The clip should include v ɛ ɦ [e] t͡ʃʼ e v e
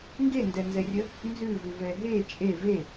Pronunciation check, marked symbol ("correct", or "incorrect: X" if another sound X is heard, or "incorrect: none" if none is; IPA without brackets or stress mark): correct